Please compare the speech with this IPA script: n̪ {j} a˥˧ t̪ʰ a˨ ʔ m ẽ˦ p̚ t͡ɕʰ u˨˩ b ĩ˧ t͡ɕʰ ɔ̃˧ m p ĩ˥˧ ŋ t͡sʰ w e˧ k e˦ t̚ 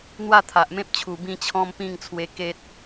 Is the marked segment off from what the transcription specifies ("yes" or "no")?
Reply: yes